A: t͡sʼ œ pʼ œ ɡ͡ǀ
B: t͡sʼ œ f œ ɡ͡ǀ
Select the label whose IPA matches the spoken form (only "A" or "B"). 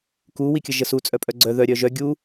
A